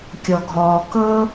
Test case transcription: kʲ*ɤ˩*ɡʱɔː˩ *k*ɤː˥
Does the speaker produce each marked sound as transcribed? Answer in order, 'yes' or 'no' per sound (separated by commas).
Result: no, yes